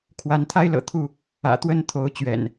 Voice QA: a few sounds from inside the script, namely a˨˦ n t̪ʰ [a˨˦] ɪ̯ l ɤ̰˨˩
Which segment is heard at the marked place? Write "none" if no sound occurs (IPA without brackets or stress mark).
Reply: a˦